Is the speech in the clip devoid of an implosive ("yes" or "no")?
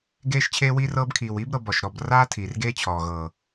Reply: yes